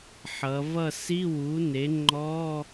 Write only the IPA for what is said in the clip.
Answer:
ħʌ˩˧vʌ˥˨ si˧˥˧wu˩˥ne˩˥ ŋ͡ǃɔ˧˥˧

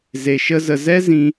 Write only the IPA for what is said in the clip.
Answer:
ze˧ʃə˦zə˧ zɛ˦zĩ˧

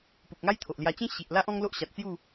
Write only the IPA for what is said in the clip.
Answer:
pu˨k̚ŋa˦jt̪ʰo˨ʔlja˧ t͡ɕẽ˦ ɕi˨ʔla˦ʔ ɔ̃˦ŋlo˦ʔ ɕa˨t̚t͡sju˥˧

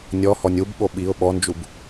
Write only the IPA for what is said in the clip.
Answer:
nʲɔhɔnʲ ubɓo ɓiʊ̯ ɓɔnd͡ʒub

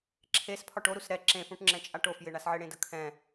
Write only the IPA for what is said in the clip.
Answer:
ǁʰespʰɒ ʈoɾus ɾɛ ǁẽfũʈŋ͡ǁɛ̃t͡ʃʼa ʈofjɪɳasʕɪ ɽẽdəkʰɛ̃

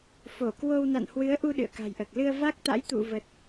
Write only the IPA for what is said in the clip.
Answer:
fo˧˩ kwo˧w na̰˧˨nhwɨ˨˦ə̯ʔu˧ ɗɨ̰˧˨ə̯ka̤˨˩jʔəː˨˩k̚ lɨ˧ə̯va˦˥k̚t̪a̰˧˥j t̪ṵ˧˨və˨˩t̚

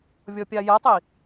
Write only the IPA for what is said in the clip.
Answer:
vʲɔpʲajətˤi

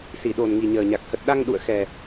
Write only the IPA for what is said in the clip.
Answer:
si˧˩ɗo˨˩n ŋi˨˩ɲəː˨˩ɲa˨˩k̚ hə˨˩t̚ɗa˧ŋɗṵ˧˨ə̯xɛ˨˩

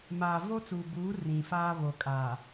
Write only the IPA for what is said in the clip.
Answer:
maː˨vo˦t͡suː˨buː˨˦ rĩ˨faː˦ βo˨kʼa˨

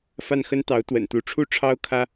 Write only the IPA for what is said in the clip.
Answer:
fa˥˩nxə˥nt̪ɑ˧˥ʊ̯ t̪wə̰˨˩nt̪u˧˥ ʈ͡ʂʰu˥˩ʈ͡ʂʰɑ˥ʊ̯ kʰä˥

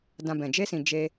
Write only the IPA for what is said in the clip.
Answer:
dã˨ bɛ̃˨ d͡ʒe˧sĩ˨ d͡ʒe˧

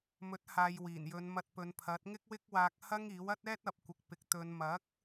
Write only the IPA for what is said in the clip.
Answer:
mɵ˨˥t̚haː˨jwiː˨˩n jɵ˨˧nmɐ˧t̚pɵ˨˧n pʰɐ˨˥t̚ŋɪ˥k̚wɪ˥k̚ waː˧k̚hɐ˥ŋ iː˨˥wɐ˥t̚ɛː˥t̚ ɐ˨p̚kʷɪ˨k̚pɪ˨k̚ t̪ɵ˨˧n mɐ˨˥k̚

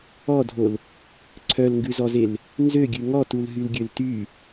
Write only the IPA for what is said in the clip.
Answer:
ɔdʱol | ǀʰœlŋɡʉzɔzel | nzøɡʲʉ ŋɔtulɦylɡʲøl ty

